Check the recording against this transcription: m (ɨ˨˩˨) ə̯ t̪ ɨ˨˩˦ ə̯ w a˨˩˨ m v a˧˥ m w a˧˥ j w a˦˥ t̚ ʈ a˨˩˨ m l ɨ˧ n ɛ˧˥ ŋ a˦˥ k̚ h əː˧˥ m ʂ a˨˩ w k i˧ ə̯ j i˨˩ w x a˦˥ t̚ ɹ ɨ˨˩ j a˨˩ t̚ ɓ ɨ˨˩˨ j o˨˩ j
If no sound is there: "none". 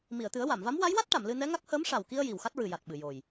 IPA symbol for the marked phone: i˨˩˨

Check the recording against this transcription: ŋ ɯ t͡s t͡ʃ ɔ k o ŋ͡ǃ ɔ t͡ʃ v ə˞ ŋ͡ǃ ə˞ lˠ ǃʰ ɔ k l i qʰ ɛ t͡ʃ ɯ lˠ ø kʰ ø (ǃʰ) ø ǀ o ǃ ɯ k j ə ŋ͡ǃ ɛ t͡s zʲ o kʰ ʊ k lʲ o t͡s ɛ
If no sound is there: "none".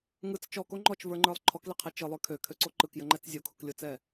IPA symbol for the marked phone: kʰ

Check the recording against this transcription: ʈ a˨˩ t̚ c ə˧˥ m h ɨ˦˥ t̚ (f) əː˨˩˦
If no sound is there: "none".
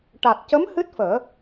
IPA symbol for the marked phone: f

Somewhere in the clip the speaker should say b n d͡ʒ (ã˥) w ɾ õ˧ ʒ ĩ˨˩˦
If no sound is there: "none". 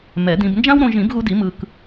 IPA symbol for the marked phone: ã˥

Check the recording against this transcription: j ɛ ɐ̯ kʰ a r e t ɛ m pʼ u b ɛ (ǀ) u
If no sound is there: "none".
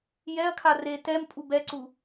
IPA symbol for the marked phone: ǀ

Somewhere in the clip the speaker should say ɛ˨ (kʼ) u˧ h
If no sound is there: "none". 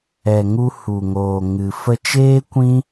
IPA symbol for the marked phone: ŋ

